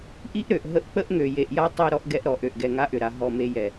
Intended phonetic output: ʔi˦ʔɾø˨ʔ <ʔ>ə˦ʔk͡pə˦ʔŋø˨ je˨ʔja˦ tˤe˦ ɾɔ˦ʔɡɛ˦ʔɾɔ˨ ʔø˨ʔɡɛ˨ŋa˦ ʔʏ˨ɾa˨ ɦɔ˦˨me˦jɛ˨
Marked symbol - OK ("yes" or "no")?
no